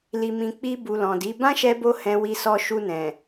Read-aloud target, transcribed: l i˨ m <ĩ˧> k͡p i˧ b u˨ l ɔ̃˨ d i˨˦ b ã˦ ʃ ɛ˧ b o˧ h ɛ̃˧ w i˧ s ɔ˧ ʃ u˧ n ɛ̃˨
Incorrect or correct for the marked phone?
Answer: incorrect: ĩ˨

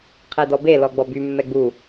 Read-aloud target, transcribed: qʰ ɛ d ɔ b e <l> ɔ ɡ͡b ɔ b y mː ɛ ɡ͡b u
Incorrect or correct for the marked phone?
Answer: correct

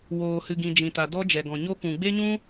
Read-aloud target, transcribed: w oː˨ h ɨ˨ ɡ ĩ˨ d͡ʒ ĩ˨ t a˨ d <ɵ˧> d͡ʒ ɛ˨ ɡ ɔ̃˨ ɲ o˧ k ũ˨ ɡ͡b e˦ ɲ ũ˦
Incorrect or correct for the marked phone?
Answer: incorrect: ɔ˧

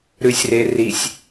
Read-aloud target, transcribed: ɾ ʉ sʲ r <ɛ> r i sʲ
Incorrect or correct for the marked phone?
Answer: incorrect: e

